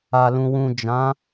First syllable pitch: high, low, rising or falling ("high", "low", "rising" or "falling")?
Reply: low